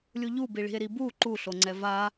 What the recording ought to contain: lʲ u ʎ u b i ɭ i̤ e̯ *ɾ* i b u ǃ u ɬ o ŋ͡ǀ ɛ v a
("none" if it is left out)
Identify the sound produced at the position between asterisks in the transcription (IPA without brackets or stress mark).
ɾ